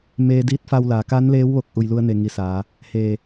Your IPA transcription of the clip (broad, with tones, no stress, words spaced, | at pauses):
meː˧diː˧˥t̚fa˧wlaː˩˧ ka˧˥nleː˧˥w ʋo˧k̚ ʔu˩jlu˧ə̯ne˩ŋi˩ saː˩˧ | heː˧˩